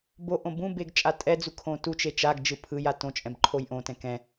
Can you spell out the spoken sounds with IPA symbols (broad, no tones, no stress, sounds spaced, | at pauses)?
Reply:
b o ʔ õ b ũ b e ɡ t͡ʃʼ a tʼ ɛ d͡z u kʰ õ t u t͡ʃ e t͡ʃ a ɡ d͡ʒ ɯ pʰ ɯ j a t õ t͡ʃʼ ɛ̃ b ǃʰ o j ʔ õ t ɛ̃ k ɛ̃